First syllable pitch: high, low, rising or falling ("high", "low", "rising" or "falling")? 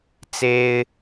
high